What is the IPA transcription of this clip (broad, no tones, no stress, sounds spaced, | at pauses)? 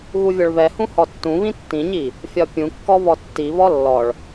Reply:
ɣ u vʲ ɔ ɭ β ɛ h ũ h ɔ tː ũ β ĩ tː ĩ ɲ i | fʲ ɒ pʲ ũ kː ɔ β ɔ tː i β ɔ lː ɔ ɭ